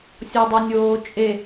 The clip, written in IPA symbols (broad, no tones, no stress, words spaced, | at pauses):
sʲɔdˤʊnʲoː t͡ʃʼe